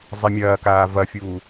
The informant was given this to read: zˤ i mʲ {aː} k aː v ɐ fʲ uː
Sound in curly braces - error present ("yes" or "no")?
yes